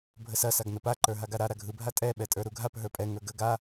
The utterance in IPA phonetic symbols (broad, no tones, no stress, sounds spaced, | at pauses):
bʱ ə s ɐ s a ɡ n ə p a ǃ ə˞ ɦ a ɡ a ɾ a ɾ a ɡʱ ɯ bʱ a tʼ ɛ ɓ ɛ tʼ ə˞ ɾ u ɡʱ a p ɦ ə˞ pʼ ɛ ŋ ə˞ ɡ ə ɡ a